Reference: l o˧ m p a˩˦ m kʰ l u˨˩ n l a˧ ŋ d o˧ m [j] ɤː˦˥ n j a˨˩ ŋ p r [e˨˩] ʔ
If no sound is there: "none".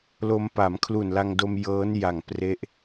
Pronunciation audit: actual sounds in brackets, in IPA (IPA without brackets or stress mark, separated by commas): j, e˦˥